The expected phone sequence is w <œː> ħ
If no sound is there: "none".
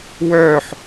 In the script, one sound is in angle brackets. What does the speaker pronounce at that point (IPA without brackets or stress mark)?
œː